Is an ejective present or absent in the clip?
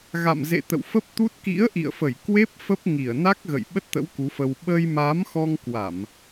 absent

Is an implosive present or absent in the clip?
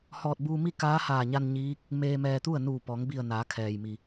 absent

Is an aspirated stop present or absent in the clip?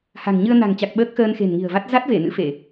absent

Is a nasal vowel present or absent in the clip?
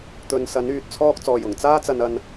absent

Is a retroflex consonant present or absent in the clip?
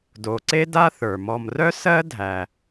absent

